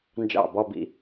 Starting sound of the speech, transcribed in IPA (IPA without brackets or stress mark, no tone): n